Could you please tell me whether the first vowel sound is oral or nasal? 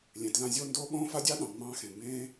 nasal